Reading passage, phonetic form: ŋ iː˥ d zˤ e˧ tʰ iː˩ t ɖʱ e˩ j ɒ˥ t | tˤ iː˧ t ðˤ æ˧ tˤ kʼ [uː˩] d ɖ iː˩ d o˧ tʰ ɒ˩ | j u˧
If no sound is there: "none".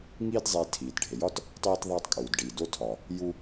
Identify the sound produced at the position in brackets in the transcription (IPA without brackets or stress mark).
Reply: uː˩